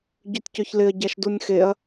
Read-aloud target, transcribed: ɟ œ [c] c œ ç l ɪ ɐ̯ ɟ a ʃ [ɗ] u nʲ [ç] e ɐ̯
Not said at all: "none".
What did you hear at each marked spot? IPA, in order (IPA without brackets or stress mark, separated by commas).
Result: tʲ, d, x